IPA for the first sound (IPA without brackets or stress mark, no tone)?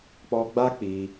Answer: k͡p